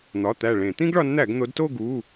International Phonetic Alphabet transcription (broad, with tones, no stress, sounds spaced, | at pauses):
n̪ ɒ˩˧˩ t̪ æ˧˩ ɭ ẽ˧˩˧ t̪ ĩ˥ ɡ ɭ ɒ˨˦ n n̪ æ˧˩˧ ɡ n̪ o˨˦ d t o˥˧ ɡ u˩˧˩